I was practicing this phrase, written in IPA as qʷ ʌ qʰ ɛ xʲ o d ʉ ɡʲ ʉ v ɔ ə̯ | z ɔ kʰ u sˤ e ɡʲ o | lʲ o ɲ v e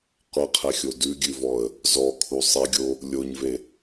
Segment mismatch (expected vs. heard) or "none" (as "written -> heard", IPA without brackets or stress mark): none